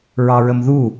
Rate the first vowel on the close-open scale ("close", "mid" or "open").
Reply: open